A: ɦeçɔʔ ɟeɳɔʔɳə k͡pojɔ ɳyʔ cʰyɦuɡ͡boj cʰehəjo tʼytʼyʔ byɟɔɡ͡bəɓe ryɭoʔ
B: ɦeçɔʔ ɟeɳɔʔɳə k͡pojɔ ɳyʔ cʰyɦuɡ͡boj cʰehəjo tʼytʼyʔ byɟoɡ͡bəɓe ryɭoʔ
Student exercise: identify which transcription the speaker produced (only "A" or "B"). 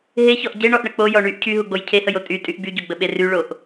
B